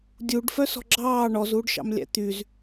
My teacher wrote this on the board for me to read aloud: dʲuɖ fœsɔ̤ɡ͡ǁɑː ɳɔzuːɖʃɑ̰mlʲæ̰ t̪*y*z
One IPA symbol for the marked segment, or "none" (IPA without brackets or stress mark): y